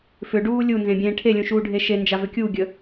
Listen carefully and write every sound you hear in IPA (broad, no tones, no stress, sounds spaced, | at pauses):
f ʏ ɖ uː lʲ u n z ẽ bʲ ẽː ʈʰ e lʲ ũ ʃ uː ɖʱ e ʃ e n d͡ʒ a v ʏ kʲ u ɡʲ ə